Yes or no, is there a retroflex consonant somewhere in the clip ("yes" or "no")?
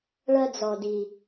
yes